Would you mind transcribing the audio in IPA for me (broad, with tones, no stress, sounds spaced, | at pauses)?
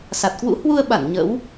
s a˨˩ t̚ k w ṵ˧˥ h w u˧ ə̯ ɓ a˧˩ n ɲ ə̰˧˥ w